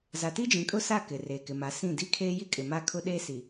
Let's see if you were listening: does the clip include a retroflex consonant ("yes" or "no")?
no